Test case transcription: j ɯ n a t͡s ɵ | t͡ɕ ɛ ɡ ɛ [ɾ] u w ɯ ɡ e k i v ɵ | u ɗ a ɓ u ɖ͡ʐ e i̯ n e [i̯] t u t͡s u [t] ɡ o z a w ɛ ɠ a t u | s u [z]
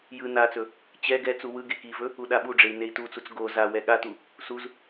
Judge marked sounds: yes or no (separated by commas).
no, yes, no, yes